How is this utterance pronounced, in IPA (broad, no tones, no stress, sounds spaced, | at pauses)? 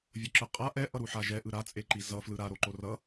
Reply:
vʲ o ǁ ɯ qʼ a ʔ ɛ ʔ ʌ ɾ u ħ a ʒ ɛ ʔ ɯ ɾ a t͡sʼ e ǃ i z ʌ f l ɯ ɾ a ɾ o ǃ o r ʌ